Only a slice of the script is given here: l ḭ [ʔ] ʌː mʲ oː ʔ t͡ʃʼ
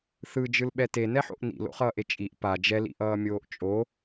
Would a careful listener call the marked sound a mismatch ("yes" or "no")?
no